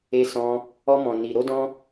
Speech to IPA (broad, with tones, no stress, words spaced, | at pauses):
e˦sɔ̃˦ | ɔ˦mɔ̃˧ ni˧ɾo˦dɔ̃˦